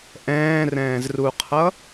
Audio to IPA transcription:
ʔ ɛ̃ː r ɛ̃ː z r u qʰ ʌ

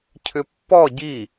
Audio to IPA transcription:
cʰ ʏ pː ɔ ɟ i

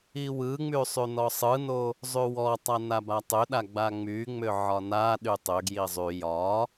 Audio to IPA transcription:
i w ɯ ŋ͡m y sˤ y n ɔ sˤ ɯ n o | zˤ y w ɔ tˤ a n a b a tˤ ʏ ɗ a ɡ͡b a ŋ͡m y ŋ͡m ʏ ʕ ɒ n a ɗ y tˤ ʏ ɡ j i zˤ y j ɒ

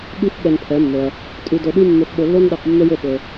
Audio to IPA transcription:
ɠ ʉ˥ f ɓ ɛ˧ n pʰ ɛ˩˥ mː ɵ˩ ɐ̯ | tʼ ʉ˧ d ɵ˧ ɗ ʉ˥ mː ɵ˧ f ɓ o˧ lː o˥ n ɗ ɛ˧ q mː ɵ˥ j o˥˩ ɓ ɵ˩

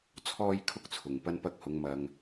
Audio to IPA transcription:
t͡sʰ ɔː˥ j kʰ ʊ˥ k̚ t͡sʰ ʊ˨ ŋ p ɐ˧ n p ɐ˧ k̚ h ʊ˨˧ ŋ m ɐ˧ ŋ

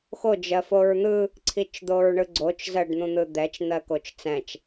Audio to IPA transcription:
x o d͡ʒ ɜ f o ɹ n̪ ɯ | ǀʰ i t͡ʃ d̪ o ɹ ɳ ɯ ɡ͡ǀ o t͡ʃ z ɜ ɖ n̪ ũ n̪ ɯ d̪ ɛ t͡ʃ n̪ ɜ k o t͡ʃ t͡s ɛ̃ t͡ʃ

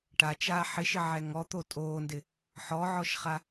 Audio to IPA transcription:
ʈ a t͡ʃ aː ħ ɪ ʃ ɪ ʕ ɛ ŋ ɔ t̪ o tʼ oː n d ɪ | ħ ɔ ʕ ɔ ʃ χ a

